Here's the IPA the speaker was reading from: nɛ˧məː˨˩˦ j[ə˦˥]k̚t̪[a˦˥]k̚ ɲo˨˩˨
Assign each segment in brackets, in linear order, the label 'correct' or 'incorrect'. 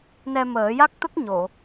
incorrect: a˦˥, incorrect: ə˦˥

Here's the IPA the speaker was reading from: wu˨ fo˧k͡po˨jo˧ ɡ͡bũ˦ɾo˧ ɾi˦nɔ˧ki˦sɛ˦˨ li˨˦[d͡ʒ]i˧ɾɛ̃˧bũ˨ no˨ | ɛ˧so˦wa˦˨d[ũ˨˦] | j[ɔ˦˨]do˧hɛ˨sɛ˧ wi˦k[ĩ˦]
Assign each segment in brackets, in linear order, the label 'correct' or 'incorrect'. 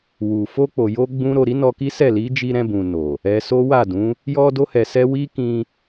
correct, correct, incorrect: ɔ˧, incorrect: ĩ˧

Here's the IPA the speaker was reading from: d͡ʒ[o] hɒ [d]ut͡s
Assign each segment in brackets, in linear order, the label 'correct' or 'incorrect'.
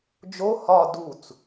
correct, correct

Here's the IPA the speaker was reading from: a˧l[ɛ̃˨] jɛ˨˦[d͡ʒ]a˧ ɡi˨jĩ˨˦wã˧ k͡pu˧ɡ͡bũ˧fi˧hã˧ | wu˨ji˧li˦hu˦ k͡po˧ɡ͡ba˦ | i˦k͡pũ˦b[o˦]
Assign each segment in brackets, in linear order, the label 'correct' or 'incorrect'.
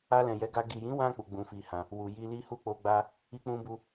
correct, incorrect: ɡ, incorrect: u˦

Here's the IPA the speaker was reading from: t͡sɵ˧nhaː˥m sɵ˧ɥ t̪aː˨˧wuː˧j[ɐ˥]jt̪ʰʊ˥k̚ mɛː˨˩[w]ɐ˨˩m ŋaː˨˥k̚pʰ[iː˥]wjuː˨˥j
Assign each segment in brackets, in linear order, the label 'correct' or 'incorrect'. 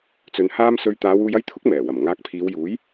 correct, correct, incorrect: iː˨˧

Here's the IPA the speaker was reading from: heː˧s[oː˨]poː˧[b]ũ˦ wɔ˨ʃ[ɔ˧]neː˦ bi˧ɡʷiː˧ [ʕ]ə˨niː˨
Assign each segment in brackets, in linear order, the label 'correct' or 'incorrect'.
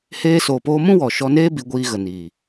correct, incorrect: m, correct, incorrect: ɣ

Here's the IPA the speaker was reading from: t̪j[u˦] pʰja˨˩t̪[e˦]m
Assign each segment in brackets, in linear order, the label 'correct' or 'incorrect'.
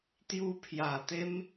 correct, correct

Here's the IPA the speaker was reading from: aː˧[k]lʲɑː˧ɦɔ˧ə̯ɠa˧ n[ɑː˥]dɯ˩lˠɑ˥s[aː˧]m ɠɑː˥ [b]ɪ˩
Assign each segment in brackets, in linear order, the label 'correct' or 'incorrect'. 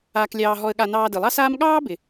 correct, incorrect: ɑː˧, incorrect: aː˥, correct

